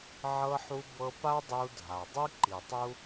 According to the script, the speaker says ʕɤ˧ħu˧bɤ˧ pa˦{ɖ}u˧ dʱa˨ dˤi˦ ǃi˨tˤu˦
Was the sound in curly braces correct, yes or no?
no